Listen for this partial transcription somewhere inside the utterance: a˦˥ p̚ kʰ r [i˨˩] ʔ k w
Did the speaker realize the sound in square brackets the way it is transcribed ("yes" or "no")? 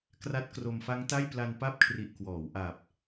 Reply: yes